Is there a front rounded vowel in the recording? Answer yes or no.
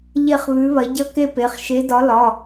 no